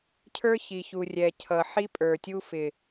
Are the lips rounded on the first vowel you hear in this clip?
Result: no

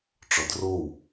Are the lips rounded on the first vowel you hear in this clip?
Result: yes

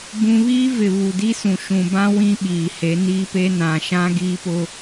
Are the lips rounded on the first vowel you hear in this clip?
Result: yes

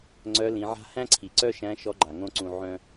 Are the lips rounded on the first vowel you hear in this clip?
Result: yes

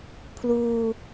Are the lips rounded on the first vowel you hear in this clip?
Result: yes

